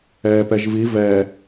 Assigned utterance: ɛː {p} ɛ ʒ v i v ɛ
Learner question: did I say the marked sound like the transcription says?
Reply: yes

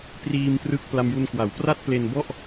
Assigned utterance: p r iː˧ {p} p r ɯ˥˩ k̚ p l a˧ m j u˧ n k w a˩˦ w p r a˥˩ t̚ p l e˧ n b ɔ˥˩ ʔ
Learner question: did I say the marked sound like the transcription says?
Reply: no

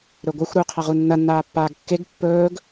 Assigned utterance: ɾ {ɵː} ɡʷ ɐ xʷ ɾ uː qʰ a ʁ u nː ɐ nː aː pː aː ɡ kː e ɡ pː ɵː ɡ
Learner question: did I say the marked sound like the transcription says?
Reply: no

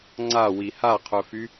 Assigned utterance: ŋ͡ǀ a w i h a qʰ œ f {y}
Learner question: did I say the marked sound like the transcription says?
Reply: yes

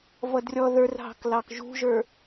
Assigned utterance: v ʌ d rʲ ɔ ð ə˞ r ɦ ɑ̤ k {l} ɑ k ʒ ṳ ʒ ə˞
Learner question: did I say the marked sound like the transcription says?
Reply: yes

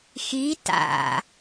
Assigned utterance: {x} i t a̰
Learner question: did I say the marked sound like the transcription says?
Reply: yes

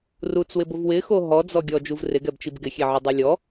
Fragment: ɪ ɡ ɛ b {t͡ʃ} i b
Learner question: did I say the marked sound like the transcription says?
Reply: yes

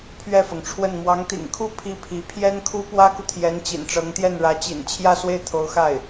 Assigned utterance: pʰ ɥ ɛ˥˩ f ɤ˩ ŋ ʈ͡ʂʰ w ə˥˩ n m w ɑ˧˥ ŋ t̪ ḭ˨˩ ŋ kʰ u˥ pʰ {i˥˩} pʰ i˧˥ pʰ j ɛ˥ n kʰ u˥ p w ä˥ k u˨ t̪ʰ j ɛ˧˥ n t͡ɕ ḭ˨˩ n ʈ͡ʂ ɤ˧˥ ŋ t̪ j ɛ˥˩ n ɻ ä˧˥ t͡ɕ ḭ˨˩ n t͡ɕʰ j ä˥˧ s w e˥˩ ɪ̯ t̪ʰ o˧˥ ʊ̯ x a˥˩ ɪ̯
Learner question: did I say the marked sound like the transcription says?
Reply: yes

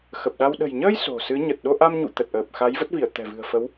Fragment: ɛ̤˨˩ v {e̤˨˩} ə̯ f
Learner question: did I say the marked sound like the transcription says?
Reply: no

